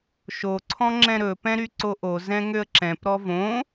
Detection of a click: present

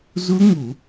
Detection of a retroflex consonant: absent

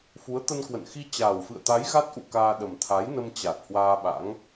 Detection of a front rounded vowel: absent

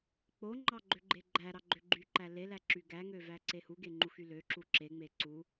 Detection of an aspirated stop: absent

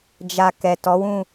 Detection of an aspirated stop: absent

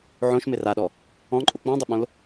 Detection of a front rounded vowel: present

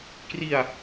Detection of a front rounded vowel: absent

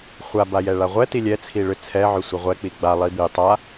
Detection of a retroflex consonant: present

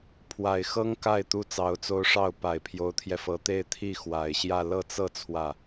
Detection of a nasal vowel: absent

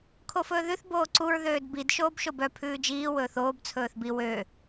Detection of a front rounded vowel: present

